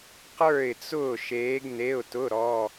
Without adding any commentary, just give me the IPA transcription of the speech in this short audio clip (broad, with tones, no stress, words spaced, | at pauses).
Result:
qə˞˥˨ɪ̯t͡sʊː˥˨ ʃeː˧˥ɡne˧˥˧ʊ̯tʊ˧˥˧ ɾɔ˧˥˧